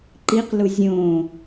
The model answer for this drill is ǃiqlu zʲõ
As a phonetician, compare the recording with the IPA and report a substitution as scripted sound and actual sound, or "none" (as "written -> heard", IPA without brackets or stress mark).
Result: none